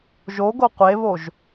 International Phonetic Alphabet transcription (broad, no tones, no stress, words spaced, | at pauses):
ʒoɡo qʷeβoʒ